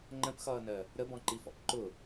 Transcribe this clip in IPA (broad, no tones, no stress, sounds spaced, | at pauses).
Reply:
ŋ͡ǃ ə̃ p x ʌː n ɜ | ɾ ə b ɔ̃ ǃ i f ɔ̰ p ǃ ʊ